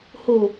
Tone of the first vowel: low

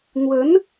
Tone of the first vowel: rising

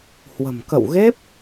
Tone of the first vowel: low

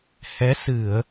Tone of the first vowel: rising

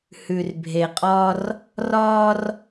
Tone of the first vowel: low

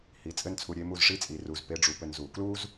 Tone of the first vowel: rising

